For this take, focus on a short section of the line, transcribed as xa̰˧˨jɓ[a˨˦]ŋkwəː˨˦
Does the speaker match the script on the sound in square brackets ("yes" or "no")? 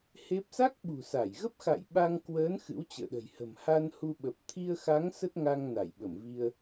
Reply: no